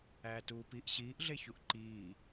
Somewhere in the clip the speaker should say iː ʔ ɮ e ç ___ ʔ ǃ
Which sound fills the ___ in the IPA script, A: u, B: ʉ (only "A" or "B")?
A